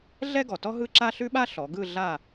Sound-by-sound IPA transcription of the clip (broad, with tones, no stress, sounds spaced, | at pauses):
ɮ ɛ˥ ɡ ɔ˩ t ɔ˥ ɦ ɯ˥ ǁ a˥ ɬ ʉ˥ ɓ a˥ ɬ ɔ˩˧ ɡ ɯ˥˧ ɮ a˥˧